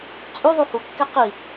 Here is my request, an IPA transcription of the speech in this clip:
t͡sʼ y ðˤ u h u kː ɛ q i

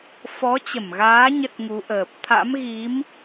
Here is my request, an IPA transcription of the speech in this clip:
f ɔ˨˦ t͡ɕ ə˧˩ m ɣ aː˨˦ ɲ ə˦˥ t̚ ŋ u˨˦ ʔ əː˨˩ p̚ t̪ʰ a̰˧˥ m ɣ i˨˦ m

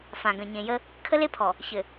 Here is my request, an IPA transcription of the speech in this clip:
f ã˨ ɡ ə̃˨ ɲ ẽ˨ j ə˦ | kʰ ə˦ l e˦ pʰ ɔ˨ | ç ɘ˨

